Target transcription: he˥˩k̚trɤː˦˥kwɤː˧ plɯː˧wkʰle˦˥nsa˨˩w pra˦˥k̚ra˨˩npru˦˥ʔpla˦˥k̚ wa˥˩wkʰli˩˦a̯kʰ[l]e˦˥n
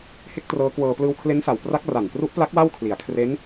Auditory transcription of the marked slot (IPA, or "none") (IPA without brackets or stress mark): r